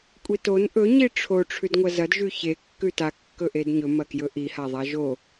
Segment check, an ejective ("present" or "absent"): present